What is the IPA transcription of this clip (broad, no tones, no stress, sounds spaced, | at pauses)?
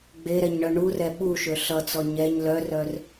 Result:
ɡ͡b e ɾ ɛ ɲ ɳ œ ɳ u r ɛ ɓ u ʃ ø ɬ ʌ t͡s ɔ ɲ ɛ ɲ l œ r œ r